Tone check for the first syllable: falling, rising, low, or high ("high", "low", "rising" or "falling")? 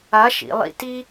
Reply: rising